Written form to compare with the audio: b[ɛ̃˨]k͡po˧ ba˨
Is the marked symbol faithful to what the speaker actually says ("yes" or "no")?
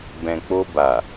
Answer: yes